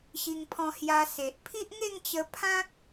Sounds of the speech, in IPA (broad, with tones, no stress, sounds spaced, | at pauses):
ɕ i˧ ŋ pʰ ɔ̃˧ h j a˧ s e˨ ʔ pʰ i˦ ʔ ŋ e˥˧ ŋ t͡ɕ ə˧ pʰ ã˦ k̚